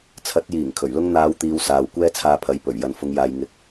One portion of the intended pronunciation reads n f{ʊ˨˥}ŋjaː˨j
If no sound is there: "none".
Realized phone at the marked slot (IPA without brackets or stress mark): ʊ˨˧